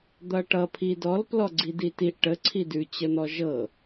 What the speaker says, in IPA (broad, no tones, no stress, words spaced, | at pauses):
d̪ʌʈʌ pʰidɔl plɔɡ͡ǀiditiʔ ʈə ǀʰidʉ t͡ɕən̪ɔʒɤ